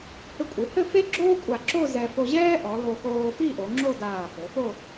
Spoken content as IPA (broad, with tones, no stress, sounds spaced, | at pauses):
h ɘ˧ kʷʼ ɨ˩˧ h ɘ˥˧ f e˥ ɡ͡ǁ oː˥ kʷʼ a˧˩ ǁ o˥˧ z ɛ˧ f o˧ ʑ ɛː˥ ʔ ɔ˩˧ l o˧ x oː˧ f i˥˧ ʔ o˩˧ ŋ͡ǁ o˥˧ d aː˧˩ f ɘ˩˧ f o˥˧